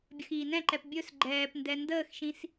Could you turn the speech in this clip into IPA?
bʲ ə x iː n ɛ̃ ǃ ɛ p bʲ ɵ s ɡ͡ǃ ɛː p n d ɛ n d əː x ʃ ĩ s

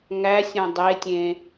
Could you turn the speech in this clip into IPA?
ŋ æ sʲ õ dˤ e tʲ ẽ

